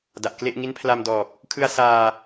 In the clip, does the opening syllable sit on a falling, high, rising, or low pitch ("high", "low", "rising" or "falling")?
low